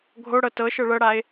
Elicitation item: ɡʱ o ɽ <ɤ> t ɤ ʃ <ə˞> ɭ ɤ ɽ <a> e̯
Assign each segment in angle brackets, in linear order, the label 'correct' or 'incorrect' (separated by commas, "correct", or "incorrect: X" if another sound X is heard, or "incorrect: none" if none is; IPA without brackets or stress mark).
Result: correct, incorrect: ɤ, correct